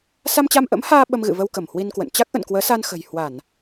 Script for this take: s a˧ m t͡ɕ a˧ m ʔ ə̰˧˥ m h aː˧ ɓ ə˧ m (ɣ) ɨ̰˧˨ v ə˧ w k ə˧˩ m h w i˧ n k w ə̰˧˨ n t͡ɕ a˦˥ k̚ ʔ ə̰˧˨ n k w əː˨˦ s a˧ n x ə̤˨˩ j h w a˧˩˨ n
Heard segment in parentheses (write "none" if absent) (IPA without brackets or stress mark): ɣ